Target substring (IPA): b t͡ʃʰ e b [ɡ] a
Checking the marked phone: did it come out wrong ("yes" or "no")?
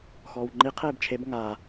yes